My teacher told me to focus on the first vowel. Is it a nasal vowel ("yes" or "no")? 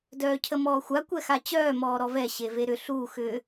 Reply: no